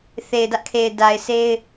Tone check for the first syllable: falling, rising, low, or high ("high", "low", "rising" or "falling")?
low